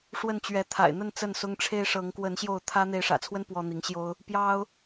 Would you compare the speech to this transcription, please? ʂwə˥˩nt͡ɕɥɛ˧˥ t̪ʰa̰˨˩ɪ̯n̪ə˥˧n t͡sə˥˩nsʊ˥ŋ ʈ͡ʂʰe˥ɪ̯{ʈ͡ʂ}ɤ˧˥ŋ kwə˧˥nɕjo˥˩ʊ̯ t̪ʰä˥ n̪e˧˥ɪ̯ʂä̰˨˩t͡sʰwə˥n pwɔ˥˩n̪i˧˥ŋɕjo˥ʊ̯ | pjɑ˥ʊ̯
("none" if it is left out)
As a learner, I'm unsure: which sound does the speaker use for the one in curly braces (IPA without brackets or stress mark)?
ʂ